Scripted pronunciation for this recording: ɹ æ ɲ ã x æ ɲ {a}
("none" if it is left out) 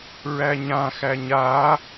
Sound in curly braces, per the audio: a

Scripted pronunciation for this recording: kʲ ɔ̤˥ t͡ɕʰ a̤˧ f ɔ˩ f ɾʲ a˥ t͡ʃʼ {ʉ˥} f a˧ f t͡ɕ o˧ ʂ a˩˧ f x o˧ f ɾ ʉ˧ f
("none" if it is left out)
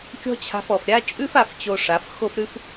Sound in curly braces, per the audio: ʉ˥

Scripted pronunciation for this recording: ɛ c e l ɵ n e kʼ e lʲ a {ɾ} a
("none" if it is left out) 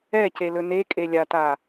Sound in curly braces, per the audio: t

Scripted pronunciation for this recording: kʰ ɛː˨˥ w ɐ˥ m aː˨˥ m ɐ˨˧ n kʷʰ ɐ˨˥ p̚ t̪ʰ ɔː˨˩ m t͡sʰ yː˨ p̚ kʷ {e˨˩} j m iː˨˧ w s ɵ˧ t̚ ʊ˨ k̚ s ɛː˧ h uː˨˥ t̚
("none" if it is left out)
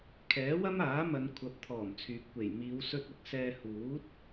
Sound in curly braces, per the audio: e˨˩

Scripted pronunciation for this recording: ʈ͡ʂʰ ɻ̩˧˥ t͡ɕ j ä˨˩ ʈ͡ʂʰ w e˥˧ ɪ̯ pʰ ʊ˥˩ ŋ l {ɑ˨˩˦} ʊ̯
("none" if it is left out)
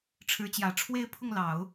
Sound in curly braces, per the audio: ɑ˨˩˦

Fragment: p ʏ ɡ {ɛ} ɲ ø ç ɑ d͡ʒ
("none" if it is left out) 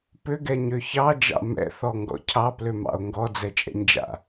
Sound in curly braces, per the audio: ɛ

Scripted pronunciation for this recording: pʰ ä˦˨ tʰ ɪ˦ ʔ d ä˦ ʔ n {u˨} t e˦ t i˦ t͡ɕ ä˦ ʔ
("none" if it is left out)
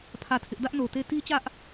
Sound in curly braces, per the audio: o˨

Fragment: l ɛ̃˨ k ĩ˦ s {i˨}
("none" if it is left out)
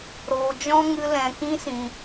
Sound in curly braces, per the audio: ĩ˨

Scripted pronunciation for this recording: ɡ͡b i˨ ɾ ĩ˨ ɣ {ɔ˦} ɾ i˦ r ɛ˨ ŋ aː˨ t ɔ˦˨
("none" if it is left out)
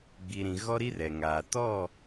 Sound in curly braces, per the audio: ɔ˦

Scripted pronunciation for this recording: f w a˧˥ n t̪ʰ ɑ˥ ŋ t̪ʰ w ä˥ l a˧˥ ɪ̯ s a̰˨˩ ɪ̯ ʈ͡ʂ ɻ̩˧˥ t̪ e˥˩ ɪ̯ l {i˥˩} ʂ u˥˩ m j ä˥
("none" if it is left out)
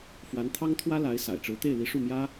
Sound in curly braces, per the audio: i˧˥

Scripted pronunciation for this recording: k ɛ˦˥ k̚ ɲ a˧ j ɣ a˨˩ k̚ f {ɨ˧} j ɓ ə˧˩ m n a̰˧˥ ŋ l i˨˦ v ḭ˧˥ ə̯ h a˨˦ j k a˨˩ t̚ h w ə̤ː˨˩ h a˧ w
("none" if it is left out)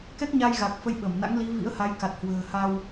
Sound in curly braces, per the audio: ə˧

